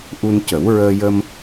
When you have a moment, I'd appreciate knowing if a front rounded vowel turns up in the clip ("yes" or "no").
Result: no